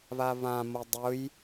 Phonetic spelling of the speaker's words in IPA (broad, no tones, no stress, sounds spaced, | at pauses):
β a β ã m ɤ dˤ ʊ j